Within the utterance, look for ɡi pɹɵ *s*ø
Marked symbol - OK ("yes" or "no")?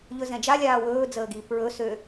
yes